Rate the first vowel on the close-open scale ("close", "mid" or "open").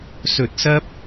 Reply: mid